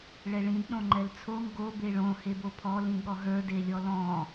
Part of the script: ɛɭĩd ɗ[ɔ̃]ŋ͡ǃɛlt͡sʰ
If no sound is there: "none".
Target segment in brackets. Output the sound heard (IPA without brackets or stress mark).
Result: õ